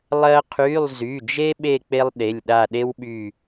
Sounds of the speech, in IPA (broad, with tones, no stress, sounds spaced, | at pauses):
lˠ ɜ˥ qʰ y˧˥˧ lˠ z y˩˧˩ d͡ʒ e˥ ɓ e˦˨ k͡p e˥ lˠ ɗ e˩˧˩ lʲ ɗ a˦˨ ɗ e˥ w ɓ y˦˨